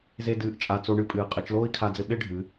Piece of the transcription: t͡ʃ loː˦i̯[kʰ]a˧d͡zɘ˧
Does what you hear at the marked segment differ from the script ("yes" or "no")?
no